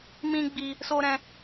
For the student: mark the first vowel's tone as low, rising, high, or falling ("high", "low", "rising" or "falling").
high